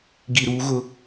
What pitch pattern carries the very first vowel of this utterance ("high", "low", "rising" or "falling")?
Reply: low